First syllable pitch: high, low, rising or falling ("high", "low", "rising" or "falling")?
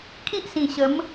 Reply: high